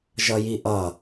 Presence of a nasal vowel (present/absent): absent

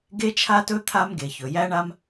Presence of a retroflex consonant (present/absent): present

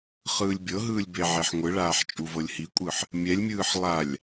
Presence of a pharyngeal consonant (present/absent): present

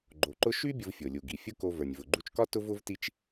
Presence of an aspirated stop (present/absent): absent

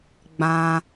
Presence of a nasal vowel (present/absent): present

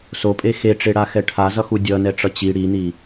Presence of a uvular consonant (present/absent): absent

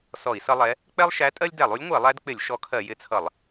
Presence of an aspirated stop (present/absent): present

